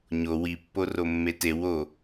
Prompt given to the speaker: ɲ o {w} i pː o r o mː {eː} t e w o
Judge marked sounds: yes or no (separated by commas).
yes, no